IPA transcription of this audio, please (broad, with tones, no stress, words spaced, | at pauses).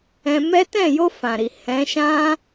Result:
ɛ̃˧mɛ˦ tɛ̃˦˨jo˧ fã˨ɾi˨ hɛ̃˨˦ʃã˦